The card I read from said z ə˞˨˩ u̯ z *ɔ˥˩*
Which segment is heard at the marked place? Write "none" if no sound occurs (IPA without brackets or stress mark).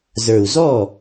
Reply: ɔ˥˩